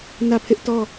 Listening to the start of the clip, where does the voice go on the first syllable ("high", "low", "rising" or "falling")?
falling